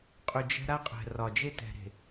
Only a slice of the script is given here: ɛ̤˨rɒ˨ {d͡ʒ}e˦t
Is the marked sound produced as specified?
yes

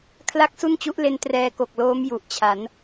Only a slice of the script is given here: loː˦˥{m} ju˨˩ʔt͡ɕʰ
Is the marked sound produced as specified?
yes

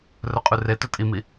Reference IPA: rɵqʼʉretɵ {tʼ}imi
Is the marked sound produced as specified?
yes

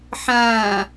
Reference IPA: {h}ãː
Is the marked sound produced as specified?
no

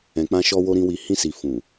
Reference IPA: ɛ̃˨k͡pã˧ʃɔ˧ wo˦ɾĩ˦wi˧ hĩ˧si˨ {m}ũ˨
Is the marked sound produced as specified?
no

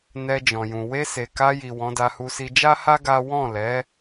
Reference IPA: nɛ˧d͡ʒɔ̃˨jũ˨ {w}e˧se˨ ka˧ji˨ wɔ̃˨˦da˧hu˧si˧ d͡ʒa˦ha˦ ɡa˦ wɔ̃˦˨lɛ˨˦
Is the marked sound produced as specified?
yes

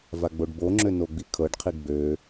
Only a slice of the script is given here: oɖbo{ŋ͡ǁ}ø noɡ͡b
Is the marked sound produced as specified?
yes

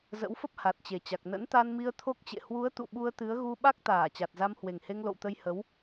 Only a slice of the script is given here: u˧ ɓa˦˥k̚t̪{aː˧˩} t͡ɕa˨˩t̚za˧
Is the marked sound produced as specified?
yes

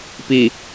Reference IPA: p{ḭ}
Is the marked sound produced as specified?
no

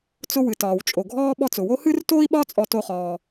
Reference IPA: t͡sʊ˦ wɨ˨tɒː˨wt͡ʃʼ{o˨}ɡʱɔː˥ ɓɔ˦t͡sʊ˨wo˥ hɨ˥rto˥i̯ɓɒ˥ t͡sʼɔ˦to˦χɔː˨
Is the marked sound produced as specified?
yes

